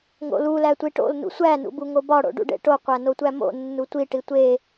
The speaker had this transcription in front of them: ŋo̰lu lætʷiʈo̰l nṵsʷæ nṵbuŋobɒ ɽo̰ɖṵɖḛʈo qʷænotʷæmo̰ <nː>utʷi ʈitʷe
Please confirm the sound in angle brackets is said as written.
yes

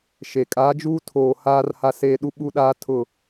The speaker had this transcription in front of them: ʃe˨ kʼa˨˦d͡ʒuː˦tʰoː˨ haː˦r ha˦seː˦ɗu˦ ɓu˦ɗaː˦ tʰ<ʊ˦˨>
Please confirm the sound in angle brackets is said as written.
yes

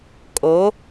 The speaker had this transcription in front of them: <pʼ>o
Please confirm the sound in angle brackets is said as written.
no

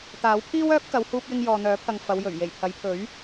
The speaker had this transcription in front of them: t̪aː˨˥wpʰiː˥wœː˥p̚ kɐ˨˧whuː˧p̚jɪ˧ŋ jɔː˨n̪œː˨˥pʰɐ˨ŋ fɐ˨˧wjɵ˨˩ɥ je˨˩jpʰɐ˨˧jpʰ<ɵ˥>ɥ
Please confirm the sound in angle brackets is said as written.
no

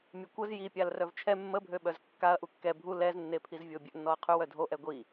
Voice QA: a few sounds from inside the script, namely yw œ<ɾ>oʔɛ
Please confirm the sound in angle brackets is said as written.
no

